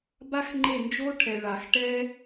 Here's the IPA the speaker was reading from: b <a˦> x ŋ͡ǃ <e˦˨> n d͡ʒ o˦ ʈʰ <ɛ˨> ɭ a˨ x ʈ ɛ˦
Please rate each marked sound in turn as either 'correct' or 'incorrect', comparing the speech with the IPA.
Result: correct, correct, correct

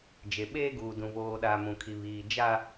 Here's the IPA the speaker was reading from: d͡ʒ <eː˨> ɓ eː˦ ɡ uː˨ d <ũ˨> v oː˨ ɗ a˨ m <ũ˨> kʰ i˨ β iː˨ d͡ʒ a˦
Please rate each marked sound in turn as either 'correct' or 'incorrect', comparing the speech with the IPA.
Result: incorrect: e˨, correct, correct

